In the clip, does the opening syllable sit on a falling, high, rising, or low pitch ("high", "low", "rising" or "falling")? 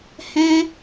high